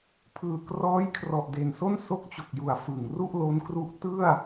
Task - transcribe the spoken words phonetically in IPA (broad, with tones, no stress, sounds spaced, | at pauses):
pʰ ɯː˨˩ k r ɔː˦˥ j kʰ r ɔ˨˩ ʔ d e˨˩ n s o˥˩ n s o˦˥ k̚ t͡ɕ o˨˩ k̚ j u˨˩ a̯ f ɯ˨˩ ŋ r u˥˩ ʔ l o˦˥ n k r u˦˥ ʔ t ɯ˥˩ a̯